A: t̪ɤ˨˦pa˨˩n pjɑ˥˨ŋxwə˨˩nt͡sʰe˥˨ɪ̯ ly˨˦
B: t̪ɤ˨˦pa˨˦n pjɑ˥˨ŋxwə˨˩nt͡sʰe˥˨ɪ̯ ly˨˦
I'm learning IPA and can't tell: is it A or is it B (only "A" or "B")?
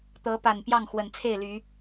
A